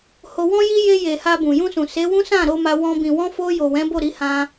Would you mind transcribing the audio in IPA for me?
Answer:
ho˧wɔ̃˦ji˦ je˧je˨ ha˧bũ˨ jũ˧sũ˨ se˨˦wũ˦ sã˦˨ ɾo˧ma˧wɔ̃˧ bĩ˨wɔ̃˧fo˧jo˨ wɛ̃˨˦bo˦˨ ɾi˨˦hã˧

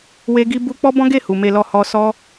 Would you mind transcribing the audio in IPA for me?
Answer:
we˦ɡi˦ bu˦ k͡pɔ˦bɔ̃˦ɡe˦˨ hu˨me˧lɔ˧ hɔ˧sɔ˦

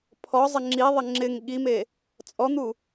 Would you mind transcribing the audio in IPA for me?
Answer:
pʰɔzˤɪ ŋ͡ǁiðˤɪ ŋ͡ǁɪŋ ɠime | t͡sʼɔn̪u

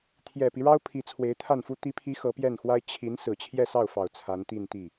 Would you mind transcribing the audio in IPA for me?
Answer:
t̪ʰjɛ˨˩pi˦ɻɑ˥ʊ̯ pʰi˧˥t͡sʰwe˧˥ɪ̯t̪ʰa˥˩nfu˥ t̪i˧˥pʰi˧˥ xɤ˧˥pjɛ˥˩nxwa˥ɪ̯ t͡ɕʰi˧˥n sɹ̩˨˩t͡ɕʰjɛ˥˧sɑ˥˩ʊ̯fɑ˨˩ʊ̯ t͡sʰa˧˥nt̪i˥˧nt̪i˥˩

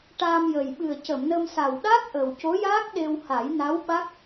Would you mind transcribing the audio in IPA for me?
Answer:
ʈaː˧mjə˨˩j ɓɨ˨˩ə̯cə˨˩˨mnə˧m sa˨˩wɗa˦˥k̚ ʔə˨˩wco˧˥jaː˦˥k̚ ɗe˧wha˨˩˦j na˧˥wɓa˦˥k̚

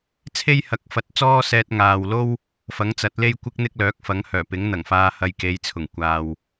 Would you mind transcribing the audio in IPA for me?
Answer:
t͡sʰe˥jhɐ˨˥k̚fɐ˨˥t̚t͡sɔː˥ sɛː˧t̚ŋaː˨wlo˥w | fɐ˨˥ŋt͡sɐ˨˥t̚le˥jkʷɪ˥k̚ n̪ɪ˥k̚lœː˨˥k̚fɐ˨˥ŋ hœː˨˩pɪ˨˥ŋn̪ɐ˨˩ŋfaː˧ hɐ˧jke˨˧jt͡sʰʊ˨˩ŋ kʷaː˨w

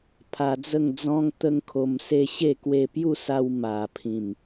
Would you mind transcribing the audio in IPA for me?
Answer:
pʰa˧d͡zə˥˧ŋd͡zɔ̃˦ŋ t̪ə˦ŋkʰo˧mse˥˧ ɕe˥˧ kwe˧pju˥˧sa˧w ma˨˩ pʰĩ˨˩m

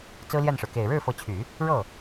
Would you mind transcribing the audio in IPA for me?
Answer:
t͡sɹ̩˥ljɛ˥˩nʂɻ̩˩ ke˨˩ɪ̯ɻɻ̩˥˩fɤ˧˥t͡ɕʰy˨˩˦ | ɻɤ˥˩

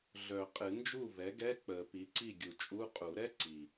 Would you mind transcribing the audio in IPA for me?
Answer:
ɮœ˨˩˦qʼɨ˨˩˦ nd͡ʒu˥˩vɛ˩˥ɡɛ˧˥˧ k͡pə˨˩˦pi˩˥ ǀi˥˩ɡʲu˨˩t͡ʃʼu˧˥˧ qʼu˨˩˦ɾɛ˧˥˧ ǀi˨˩

